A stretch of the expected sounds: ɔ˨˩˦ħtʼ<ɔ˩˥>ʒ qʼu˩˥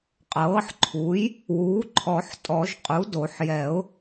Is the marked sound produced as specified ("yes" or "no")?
no